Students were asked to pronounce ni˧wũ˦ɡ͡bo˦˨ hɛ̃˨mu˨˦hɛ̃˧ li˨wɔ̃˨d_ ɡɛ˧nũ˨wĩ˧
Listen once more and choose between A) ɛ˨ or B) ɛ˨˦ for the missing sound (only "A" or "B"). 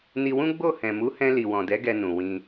B